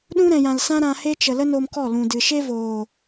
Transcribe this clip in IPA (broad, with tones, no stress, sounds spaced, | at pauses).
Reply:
ɗ ũ˦ ɾ ɛ̃˨ j ã˨ l s ã˦ ɾ ã˧ h e˦ t͡ʃ ə˨ l ə˦ n o˧ m k ɔ˦˨ l ũ˨ d ɨ˨ ʃ e˦ v oː˨